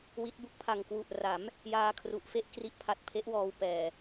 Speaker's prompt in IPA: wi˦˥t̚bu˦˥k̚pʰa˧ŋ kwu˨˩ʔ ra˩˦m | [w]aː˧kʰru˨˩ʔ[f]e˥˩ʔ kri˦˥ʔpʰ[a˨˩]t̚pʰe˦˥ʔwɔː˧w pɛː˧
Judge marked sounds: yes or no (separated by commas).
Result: no, yes, yes